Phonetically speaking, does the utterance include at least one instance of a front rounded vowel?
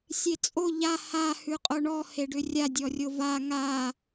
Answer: yes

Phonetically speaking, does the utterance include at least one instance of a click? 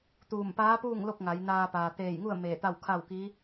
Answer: no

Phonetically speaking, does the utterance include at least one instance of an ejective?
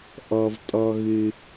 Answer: yes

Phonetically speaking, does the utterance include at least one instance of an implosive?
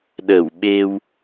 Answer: yes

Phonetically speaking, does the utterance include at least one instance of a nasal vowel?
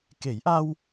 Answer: no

